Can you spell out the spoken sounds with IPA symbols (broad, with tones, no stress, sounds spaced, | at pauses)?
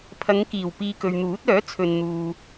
pʰ ɐ˨˧ ŋ k iː˨˩ w p iː˨ k ɵ˨ ɥ n̪ uː˨˥ t̚ œː˨˥ t͡sʰ ɵ˨ n n̪ uː˨